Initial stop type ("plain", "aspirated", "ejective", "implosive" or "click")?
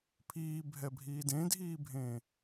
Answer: aspirated